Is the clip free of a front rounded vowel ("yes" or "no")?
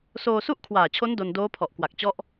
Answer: yes